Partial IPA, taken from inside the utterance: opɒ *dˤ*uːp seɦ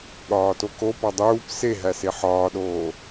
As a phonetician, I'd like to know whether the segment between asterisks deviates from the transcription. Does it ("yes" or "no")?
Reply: no